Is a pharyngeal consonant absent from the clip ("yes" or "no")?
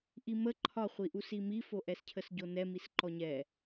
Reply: yes